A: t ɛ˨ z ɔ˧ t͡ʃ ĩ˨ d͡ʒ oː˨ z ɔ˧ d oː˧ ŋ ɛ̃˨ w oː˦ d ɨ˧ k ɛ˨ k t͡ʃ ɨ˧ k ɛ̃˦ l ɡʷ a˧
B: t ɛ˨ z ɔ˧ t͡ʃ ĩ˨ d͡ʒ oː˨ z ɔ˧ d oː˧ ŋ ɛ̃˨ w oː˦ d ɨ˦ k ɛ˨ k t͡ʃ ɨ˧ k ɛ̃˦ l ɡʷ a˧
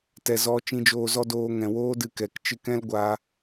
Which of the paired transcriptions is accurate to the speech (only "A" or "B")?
A